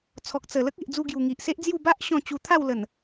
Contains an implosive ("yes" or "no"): no